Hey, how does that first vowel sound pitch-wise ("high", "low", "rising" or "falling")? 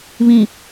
low